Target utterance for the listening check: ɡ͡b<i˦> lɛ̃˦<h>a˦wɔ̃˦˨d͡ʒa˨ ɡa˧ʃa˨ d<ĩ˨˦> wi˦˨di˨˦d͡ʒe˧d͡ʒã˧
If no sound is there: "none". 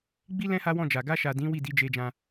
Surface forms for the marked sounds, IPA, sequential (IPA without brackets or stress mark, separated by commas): i˦, h, ĩ˨˦